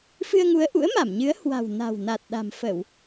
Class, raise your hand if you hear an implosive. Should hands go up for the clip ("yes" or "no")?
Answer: yes